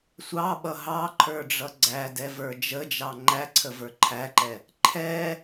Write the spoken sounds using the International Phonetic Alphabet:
sʷ ɑ ɓ ʌ ɦ ɑ ǃʰ ə˞ ɖ͡ʐ ʌ ɡ͡ǀ æ d ɛ v ə˞ d͡ʒ ə d͡ʒ ɑ ŋ͡ǃ æ ǀʰ ə v ə˞ ǃʰ æ ǃ ɛ | ǃʰ ɛ

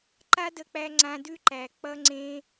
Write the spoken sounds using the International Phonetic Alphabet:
ǃ a˦ d ə˧ k͡p æ˧ ŋ͡ǀ ã˧ d ʉ˦ ǃ æ˨ k͡p ʌ˦ ŋ͡ǀ ẽ˦

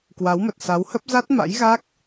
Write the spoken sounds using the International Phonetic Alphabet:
k w a˨˦ w m ə˨˩ t̚ s a˨˦ w h ə˦˥ p̚ z a˦˥ t̚ m a̰˧˥ j ɣ a˦˥ k̚

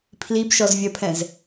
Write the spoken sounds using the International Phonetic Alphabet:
pʰ l i b ʃ ɔ z vʲ ɜ pʰ ɛ̃ z

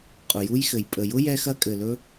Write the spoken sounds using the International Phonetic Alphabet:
qʼ ʊ˨ j u˦ j x ɘ˨ j pʼ ə˨ j ʊ˦ j ɛ˦ x ɐ˦ kʼ ɘ˨ l ɵ˦

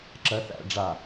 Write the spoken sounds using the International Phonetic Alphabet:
ǁ ɜ θ æ̰ ɖ͡ʐ a

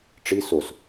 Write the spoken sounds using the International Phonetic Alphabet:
ʈ͡ʂ i s o s

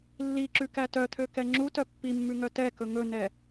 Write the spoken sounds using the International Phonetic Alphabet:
lː i ǁ ʉ k æ t œ t̪ʰ ø k ɛ ŋ͡ǁ u t œ pː i mː ʉ ŋ œ t ɛ k ɵ ŋ ɵ n ɛ

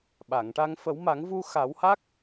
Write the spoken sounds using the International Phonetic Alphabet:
ɓ a˨˩˨ ŋ ʈ a˧ ŋ f ə˨˩˦ w m a˨˩˦ ŋ v u˧ x a˨˩˦ w h a˦˥ k̚

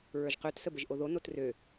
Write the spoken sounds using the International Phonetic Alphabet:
ɹ ə˞ ʒ q ø t s ə b ə ʒ ʔ o ð o n o t r ø

